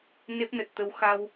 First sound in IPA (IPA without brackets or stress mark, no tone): n